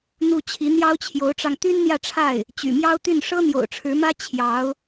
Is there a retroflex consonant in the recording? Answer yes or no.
yes